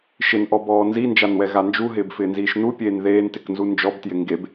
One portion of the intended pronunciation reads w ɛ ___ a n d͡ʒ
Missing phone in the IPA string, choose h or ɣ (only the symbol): ɣ